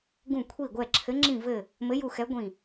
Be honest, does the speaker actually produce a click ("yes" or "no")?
yes